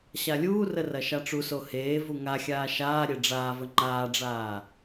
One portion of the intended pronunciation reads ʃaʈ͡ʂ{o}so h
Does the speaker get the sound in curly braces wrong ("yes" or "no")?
yes